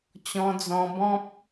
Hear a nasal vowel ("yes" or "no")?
yes